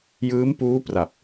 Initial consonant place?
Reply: palatal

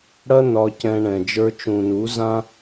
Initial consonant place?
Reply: retroflex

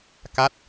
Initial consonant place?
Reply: velar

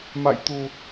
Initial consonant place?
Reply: labial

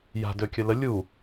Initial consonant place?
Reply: palatal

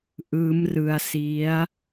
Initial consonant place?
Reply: glottal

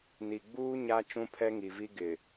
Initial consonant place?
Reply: alveolar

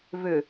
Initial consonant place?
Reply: labial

